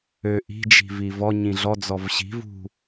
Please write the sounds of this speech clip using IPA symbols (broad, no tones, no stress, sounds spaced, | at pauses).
ø ʔ i̤ d͡ʒ i̤ v i v ɔ ɲ ĩ ɮ ɔ d͡z ɔ v ɕ i̤ v ṳ